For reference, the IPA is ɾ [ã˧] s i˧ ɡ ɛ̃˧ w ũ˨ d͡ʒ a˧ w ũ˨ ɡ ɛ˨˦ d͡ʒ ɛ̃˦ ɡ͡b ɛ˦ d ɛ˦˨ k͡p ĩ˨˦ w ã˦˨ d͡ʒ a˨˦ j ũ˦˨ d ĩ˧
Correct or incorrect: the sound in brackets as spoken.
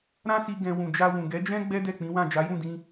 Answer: incorrect: ã˦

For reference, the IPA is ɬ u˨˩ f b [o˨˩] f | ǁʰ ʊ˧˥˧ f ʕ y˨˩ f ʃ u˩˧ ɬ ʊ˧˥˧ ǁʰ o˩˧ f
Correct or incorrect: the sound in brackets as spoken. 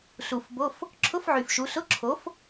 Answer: incorrect: o˧˥˧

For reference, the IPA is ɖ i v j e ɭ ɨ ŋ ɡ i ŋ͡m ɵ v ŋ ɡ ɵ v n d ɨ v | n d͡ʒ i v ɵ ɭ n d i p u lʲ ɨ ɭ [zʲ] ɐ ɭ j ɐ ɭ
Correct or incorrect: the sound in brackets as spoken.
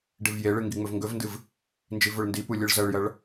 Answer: incorrect: z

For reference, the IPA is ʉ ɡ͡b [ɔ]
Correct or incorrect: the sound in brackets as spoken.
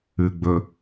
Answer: incorrect: ɵ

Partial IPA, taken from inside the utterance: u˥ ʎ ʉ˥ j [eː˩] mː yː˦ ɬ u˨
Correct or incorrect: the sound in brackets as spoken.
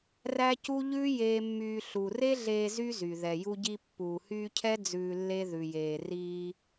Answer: incorrect: eː˥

